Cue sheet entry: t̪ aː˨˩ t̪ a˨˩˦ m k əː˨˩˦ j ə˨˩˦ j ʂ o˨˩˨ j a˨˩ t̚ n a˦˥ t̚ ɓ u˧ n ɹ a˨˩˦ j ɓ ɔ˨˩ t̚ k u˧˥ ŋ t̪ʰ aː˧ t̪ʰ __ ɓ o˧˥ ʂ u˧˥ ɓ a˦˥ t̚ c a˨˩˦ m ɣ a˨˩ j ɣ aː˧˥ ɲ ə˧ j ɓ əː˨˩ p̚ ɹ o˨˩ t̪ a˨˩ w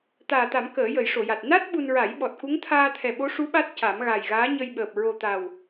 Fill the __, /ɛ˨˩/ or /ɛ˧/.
ɛ˨˩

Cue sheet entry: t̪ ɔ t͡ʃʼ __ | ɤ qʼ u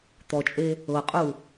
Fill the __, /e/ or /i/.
e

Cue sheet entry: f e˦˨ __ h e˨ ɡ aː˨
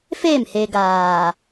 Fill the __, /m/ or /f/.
m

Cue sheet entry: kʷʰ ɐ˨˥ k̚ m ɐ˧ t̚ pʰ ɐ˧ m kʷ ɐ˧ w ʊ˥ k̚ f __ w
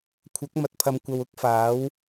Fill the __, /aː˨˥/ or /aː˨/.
aː˨˥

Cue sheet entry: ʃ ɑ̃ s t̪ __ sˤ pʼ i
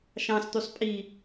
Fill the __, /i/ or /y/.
y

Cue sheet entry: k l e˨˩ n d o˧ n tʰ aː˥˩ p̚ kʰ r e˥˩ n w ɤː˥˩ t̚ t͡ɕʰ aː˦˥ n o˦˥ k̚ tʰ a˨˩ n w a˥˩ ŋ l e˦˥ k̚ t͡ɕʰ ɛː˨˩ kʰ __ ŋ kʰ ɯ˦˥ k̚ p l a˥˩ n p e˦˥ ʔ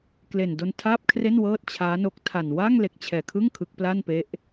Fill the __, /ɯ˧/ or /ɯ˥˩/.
ɯ˥˩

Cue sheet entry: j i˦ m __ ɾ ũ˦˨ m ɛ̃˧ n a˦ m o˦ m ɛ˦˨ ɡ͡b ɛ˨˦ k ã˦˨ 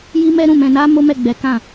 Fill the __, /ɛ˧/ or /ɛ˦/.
ɛ˦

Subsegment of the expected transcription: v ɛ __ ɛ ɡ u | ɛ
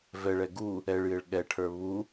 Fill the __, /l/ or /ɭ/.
ɭ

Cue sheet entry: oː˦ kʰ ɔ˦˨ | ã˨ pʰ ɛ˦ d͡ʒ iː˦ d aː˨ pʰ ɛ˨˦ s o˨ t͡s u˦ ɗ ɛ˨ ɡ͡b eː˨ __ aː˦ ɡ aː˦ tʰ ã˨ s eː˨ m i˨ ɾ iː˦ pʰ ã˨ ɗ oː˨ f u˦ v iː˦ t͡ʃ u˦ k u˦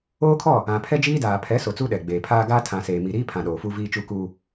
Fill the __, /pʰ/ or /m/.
pʰ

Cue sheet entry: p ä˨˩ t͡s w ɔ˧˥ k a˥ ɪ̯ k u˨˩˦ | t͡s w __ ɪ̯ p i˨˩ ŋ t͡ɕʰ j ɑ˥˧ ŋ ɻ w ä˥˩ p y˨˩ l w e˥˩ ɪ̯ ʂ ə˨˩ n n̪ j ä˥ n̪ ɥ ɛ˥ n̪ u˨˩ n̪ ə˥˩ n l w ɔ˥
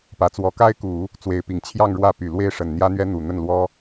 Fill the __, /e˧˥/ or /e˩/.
e˧˥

